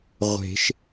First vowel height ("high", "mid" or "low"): mid